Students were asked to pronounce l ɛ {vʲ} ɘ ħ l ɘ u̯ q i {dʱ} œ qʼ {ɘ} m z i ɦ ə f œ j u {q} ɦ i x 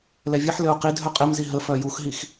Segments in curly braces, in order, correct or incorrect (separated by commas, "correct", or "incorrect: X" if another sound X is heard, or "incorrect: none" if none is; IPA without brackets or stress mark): correct, correct, correct, incorrect: x